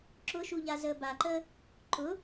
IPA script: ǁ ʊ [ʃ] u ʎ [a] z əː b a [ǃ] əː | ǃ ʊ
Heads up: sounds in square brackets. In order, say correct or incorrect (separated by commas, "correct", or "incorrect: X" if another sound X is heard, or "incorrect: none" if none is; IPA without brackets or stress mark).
correct, correct, correct